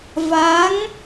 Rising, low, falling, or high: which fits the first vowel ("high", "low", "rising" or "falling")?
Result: rising